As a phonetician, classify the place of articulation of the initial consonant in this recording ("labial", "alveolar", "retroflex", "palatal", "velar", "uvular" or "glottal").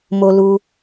labial